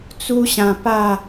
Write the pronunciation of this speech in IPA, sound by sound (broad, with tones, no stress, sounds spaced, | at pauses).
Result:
t͡s u˦ ɕ ã˧ p a˥˧